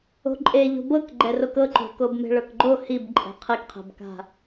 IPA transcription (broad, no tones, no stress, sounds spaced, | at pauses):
o̤ ǃʼ e ʎ o̤ b ɤ k ɡ͡ǃ ɛ r o k ɤ ǃ o̤ k o b m e̤ ɭ ɤ k ɡ͡ǃ o h i b ǃʼ ɛ̤ qʰ e k qʰ ɛ̤ b k a̤